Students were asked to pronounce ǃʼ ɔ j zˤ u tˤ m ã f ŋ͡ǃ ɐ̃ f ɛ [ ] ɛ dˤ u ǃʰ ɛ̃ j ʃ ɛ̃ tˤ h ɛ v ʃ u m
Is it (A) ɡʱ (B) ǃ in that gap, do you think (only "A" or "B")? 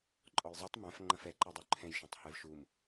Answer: B